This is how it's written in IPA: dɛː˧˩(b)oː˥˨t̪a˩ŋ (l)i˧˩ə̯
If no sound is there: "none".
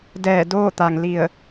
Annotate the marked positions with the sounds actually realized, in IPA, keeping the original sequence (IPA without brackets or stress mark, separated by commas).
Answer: d, l